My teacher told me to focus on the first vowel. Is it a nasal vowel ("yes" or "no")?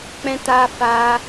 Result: yes